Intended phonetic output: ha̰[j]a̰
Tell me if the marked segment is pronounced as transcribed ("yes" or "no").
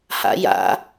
yes